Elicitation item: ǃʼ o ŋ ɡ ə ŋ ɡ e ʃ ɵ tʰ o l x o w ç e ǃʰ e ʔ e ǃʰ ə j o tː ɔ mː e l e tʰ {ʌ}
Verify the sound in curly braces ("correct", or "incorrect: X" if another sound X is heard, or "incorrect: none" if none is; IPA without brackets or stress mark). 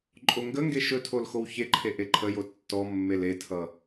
correct